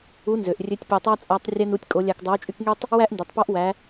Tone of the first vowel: rising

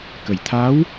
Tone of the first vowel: low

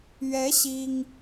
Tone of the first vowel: rising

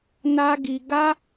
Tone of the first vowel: high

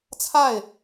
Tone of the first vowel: falling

